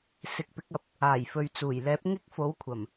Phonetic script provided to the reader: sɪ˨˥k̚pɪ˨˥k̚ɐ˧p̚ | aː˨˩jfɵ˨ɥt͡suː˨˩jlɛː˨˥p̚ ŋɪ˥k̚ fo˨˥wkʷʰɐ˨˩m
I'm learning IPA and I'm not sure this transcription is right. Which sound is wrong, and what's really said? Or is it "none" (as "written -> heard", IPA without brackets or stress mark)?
none